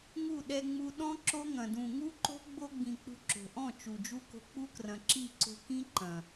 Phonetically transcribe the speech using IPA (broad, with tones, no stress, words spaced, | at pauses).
ŋu˦˨ɗɛ˧ŋ͡mu˧ ɗɔ̃˦ ǁo˦ŋɐ̃˨ dũ˨ŋu˦ǃo̤˦ ɡ͡bo˧ɡ͡bĩ˨ k͡pṳ˧ǁo̤˨ʔɔ̃˦˨ t͡ʃu˨d͡ʒu˦ko̤˧ k͡pu˦krɐ̃˨ǁi˦˨ǀo̤˧ kĩ˦ǃɐ̃˨